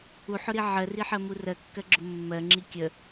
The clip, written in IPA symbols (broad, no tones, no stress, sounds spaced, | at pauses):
u ħ ʊ ɾ i ʕ ɜ r i ħ ɜ m u r ɜ kː ɜ ɡ͡ǁ ʊ mː ɜ ŋ͡ǁ i kʲ ə